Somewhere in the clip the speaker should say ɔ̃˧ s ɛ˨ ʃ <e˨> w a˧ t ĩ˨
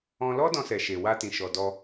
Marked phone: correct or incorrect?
correct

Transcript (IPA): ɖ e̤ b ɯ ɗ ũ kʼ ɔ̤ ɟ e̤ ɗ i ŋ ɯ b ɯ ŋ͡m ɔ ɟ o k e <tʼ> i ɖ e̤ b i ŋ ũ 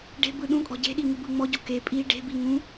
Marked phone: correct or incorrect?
incorrect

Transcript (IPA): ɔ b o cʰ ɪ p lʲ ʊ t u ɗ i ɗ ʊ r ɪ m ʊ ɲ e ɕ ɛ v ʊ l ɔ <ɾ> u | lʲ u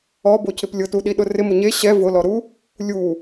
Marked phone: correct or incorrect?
correct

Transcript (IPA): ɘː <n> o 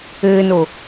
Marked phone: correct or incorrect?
correct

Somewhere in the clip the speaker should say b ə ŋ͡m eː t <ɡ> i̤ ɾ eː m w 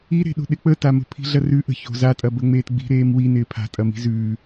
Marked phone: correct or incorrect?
incorrect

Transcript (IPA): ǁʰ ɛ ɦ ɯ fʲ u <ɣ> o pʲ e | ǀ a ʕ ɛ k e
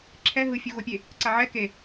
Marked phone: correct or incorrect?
correct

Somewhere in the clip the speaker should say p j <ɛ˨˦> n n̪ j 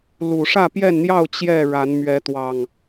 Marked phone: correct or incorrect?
incorrect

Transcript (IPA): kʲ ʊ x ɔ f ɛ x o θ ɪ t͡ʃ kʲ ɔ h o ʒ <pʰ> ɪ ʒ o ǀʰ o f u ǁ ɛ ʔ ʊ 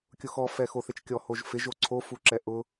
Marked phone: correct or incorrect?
incorrect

